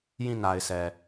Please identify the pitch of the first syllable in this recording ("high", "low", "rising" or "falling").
falling